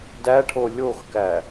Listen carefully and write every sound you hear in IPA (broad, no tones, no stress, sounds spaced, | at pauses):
d æ ʈʰ o lʲ o x k æ